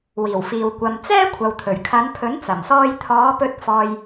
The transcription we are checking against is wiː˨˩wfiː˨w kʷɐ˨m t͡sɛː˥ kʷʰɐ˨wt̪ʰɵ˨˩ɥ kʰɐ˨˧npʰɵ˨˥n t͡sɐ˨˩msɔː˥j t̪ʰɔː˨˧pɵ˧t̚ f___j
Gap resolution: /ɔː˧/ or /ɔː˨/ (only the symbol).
ɔː˧